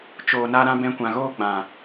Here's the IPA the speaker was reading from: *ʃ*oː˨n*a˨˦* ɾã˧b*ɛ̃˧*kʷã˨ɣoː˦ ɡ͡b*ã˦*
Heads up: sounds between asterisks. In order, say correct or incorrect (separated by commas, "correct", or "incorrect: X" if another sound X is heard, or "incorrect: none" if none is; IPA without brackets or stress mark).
incorrect: t͡ʃ, incorrect: a˧, correct, incorrect: ã˨